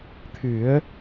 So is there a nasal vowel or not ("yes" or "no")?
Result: no